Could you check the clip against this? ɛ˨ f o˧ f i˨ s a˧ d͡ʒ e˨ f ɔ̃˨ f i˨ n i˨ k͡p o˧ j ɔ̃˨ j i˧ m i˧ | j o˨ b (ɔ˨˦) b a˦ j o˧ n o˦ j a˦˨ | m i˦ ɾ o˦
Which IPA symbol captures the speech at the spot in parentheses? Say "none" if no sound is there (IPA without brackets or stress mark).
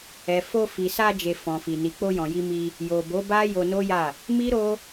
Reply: o˨˦